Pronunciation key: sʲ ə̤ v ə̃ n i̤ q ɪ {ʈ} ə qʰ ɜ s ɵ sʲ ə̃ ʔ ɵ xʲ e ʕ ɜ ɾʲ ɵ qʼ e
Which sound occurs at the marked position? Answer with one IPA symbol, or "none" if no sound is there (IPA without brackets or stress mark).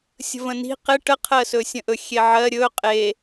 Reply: ʈ